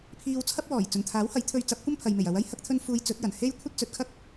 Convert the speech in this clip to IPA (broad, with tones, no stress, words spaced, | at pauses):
pʰiː˧wt͡sʰɐ˥p̚wɔː˨˩j t͡sɵ˨˩nt̪ʰaː˨˥whɐ˨˥j t̪ʰɵ˧ɥt͡sɐ˨˥p̚kʷɐ˥m pʰɐ˨jme˨˩jɐ˨˧wɐ˥j hɐ˧k̚t̪ʰɵ˧nfuː˨˧j t͡sɵ˨˥t̚jɐ˨˩n he˥j kʷʰɐ˥t̚t͡sɵ˨t̚kʰɐ˥k̚